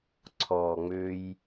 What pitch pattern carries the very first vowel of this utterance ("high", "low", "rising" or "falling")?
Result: low